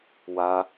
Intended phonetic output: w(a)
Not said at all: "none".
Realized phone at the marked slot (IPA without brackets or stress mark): a